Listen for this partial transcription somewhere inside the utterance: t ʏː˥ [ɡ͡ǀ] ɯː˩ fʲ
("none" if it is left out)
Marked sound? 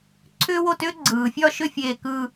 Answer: ɡ͡ǀ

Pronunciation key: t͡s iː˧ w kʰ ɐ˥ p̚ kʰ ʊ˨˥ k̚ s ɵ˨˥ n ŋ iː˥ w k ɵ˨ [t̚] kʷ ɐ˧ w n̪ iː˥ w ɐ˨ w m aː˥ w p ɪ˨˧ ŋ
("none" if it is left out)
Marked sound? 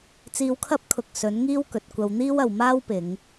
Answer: t̚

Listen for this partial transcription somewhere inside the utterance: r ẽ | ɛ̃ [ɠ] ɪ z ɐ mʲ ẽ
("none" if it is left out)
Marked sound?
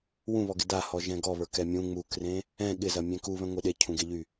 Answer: ɠ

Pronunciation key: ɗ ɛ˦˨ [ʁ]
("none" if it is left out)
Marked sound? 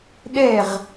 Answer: ʁ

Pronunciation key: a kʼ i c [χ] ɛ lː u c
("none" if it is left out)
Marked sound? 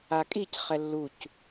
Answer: χ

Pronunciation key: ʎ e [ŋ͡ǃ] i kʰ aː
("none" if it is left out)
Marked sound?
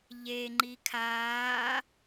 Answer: ŋ͡ǃ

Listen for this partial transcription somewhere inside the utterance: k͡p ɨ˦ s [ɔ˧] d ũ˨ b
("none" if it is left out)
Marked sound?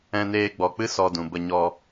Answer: ɔ˧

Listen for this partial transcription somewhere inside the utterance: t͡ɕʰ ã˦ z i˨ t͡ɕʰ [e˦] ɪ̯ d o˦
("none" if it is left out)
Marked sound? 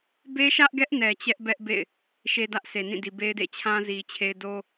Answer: e˦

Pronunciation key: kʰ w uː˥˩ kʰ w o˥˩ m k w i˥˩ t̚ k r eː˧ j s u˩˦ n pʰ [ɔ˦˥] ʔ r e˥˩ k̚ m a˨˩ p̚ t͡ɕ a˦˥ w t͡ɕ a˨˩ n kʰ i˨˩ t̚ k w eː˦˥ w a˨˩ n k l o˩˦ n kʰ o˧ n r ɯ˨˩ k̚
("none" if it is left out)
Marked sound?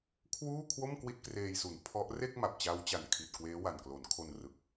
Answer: ɔ˦˥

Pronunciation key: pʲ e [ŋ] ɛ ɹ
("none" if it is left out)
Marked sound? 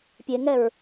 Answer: ŋ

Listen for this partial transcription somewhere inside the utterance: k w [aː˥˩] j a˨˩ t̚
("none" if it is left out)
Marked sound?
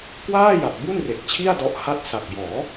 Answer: aː˥˩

